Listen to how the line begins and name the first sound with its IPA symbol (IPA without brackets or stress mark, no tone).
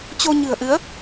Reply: t͡ɕ